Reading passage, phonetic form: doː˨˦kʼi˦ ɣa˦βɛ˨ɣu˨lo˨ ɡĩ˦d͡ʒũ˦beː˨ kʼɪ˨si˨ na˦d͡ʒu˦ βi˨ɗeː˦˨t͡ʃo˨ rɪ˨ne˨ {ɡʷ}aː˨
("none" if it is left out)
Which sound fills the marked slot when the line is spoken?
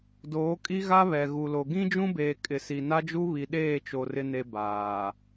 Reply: b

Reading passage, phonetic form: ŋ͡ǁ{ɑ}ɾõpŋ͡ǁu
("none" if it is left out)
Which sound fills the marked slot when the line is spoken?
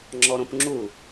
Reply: ɔ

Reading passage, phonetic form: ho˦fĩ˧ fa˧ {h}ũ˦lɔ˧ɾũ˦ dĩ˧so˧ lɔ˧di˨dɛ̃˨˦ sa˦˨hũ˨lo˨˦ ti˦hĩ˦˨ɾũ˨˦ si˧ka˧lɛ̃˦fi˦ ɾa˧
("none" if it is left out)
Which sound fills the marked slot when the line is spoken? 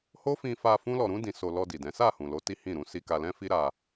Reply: f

